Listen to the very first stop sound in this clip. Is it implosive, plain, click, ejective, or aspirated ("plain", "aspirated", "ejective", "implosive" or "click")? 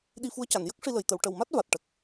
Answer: implosive